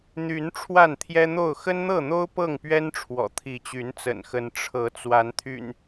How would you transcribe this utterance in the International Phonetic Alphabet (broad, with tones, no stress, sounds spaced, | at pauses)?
n̪ y˨˦ n ʈ͡ʂʰ w a˥˨ n t̪ʰ j ɛ˦ n̪ o˥˨ ʊ̯ x ə˦ n n̪ ɤ˥˨ n̪ o˦ ʊ̯ p ɤ˥˨ ŋ p ɥ ɛ˦ n ʈ͡ʂʰ w ɔ̰˨˩ t̪ʰ i˨˦ t͡ɕ y˨˦ n t͡s ə̰˨˩ n x ə˨˦ n ʈ͡ʂʰ ɤ˨˦ t͡s w a˨˦ n t̪ʰ y̰˨˩ n